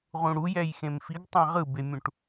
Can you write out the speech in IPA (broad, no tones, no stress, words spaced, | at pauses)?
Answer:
ʁũɽu jɛjxẽmfiɡ tˤãʁɯbemʲũʈ